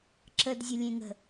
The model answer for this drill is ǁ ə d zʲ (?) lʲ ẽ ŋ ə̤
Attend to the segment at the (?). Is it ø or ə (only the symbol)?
ə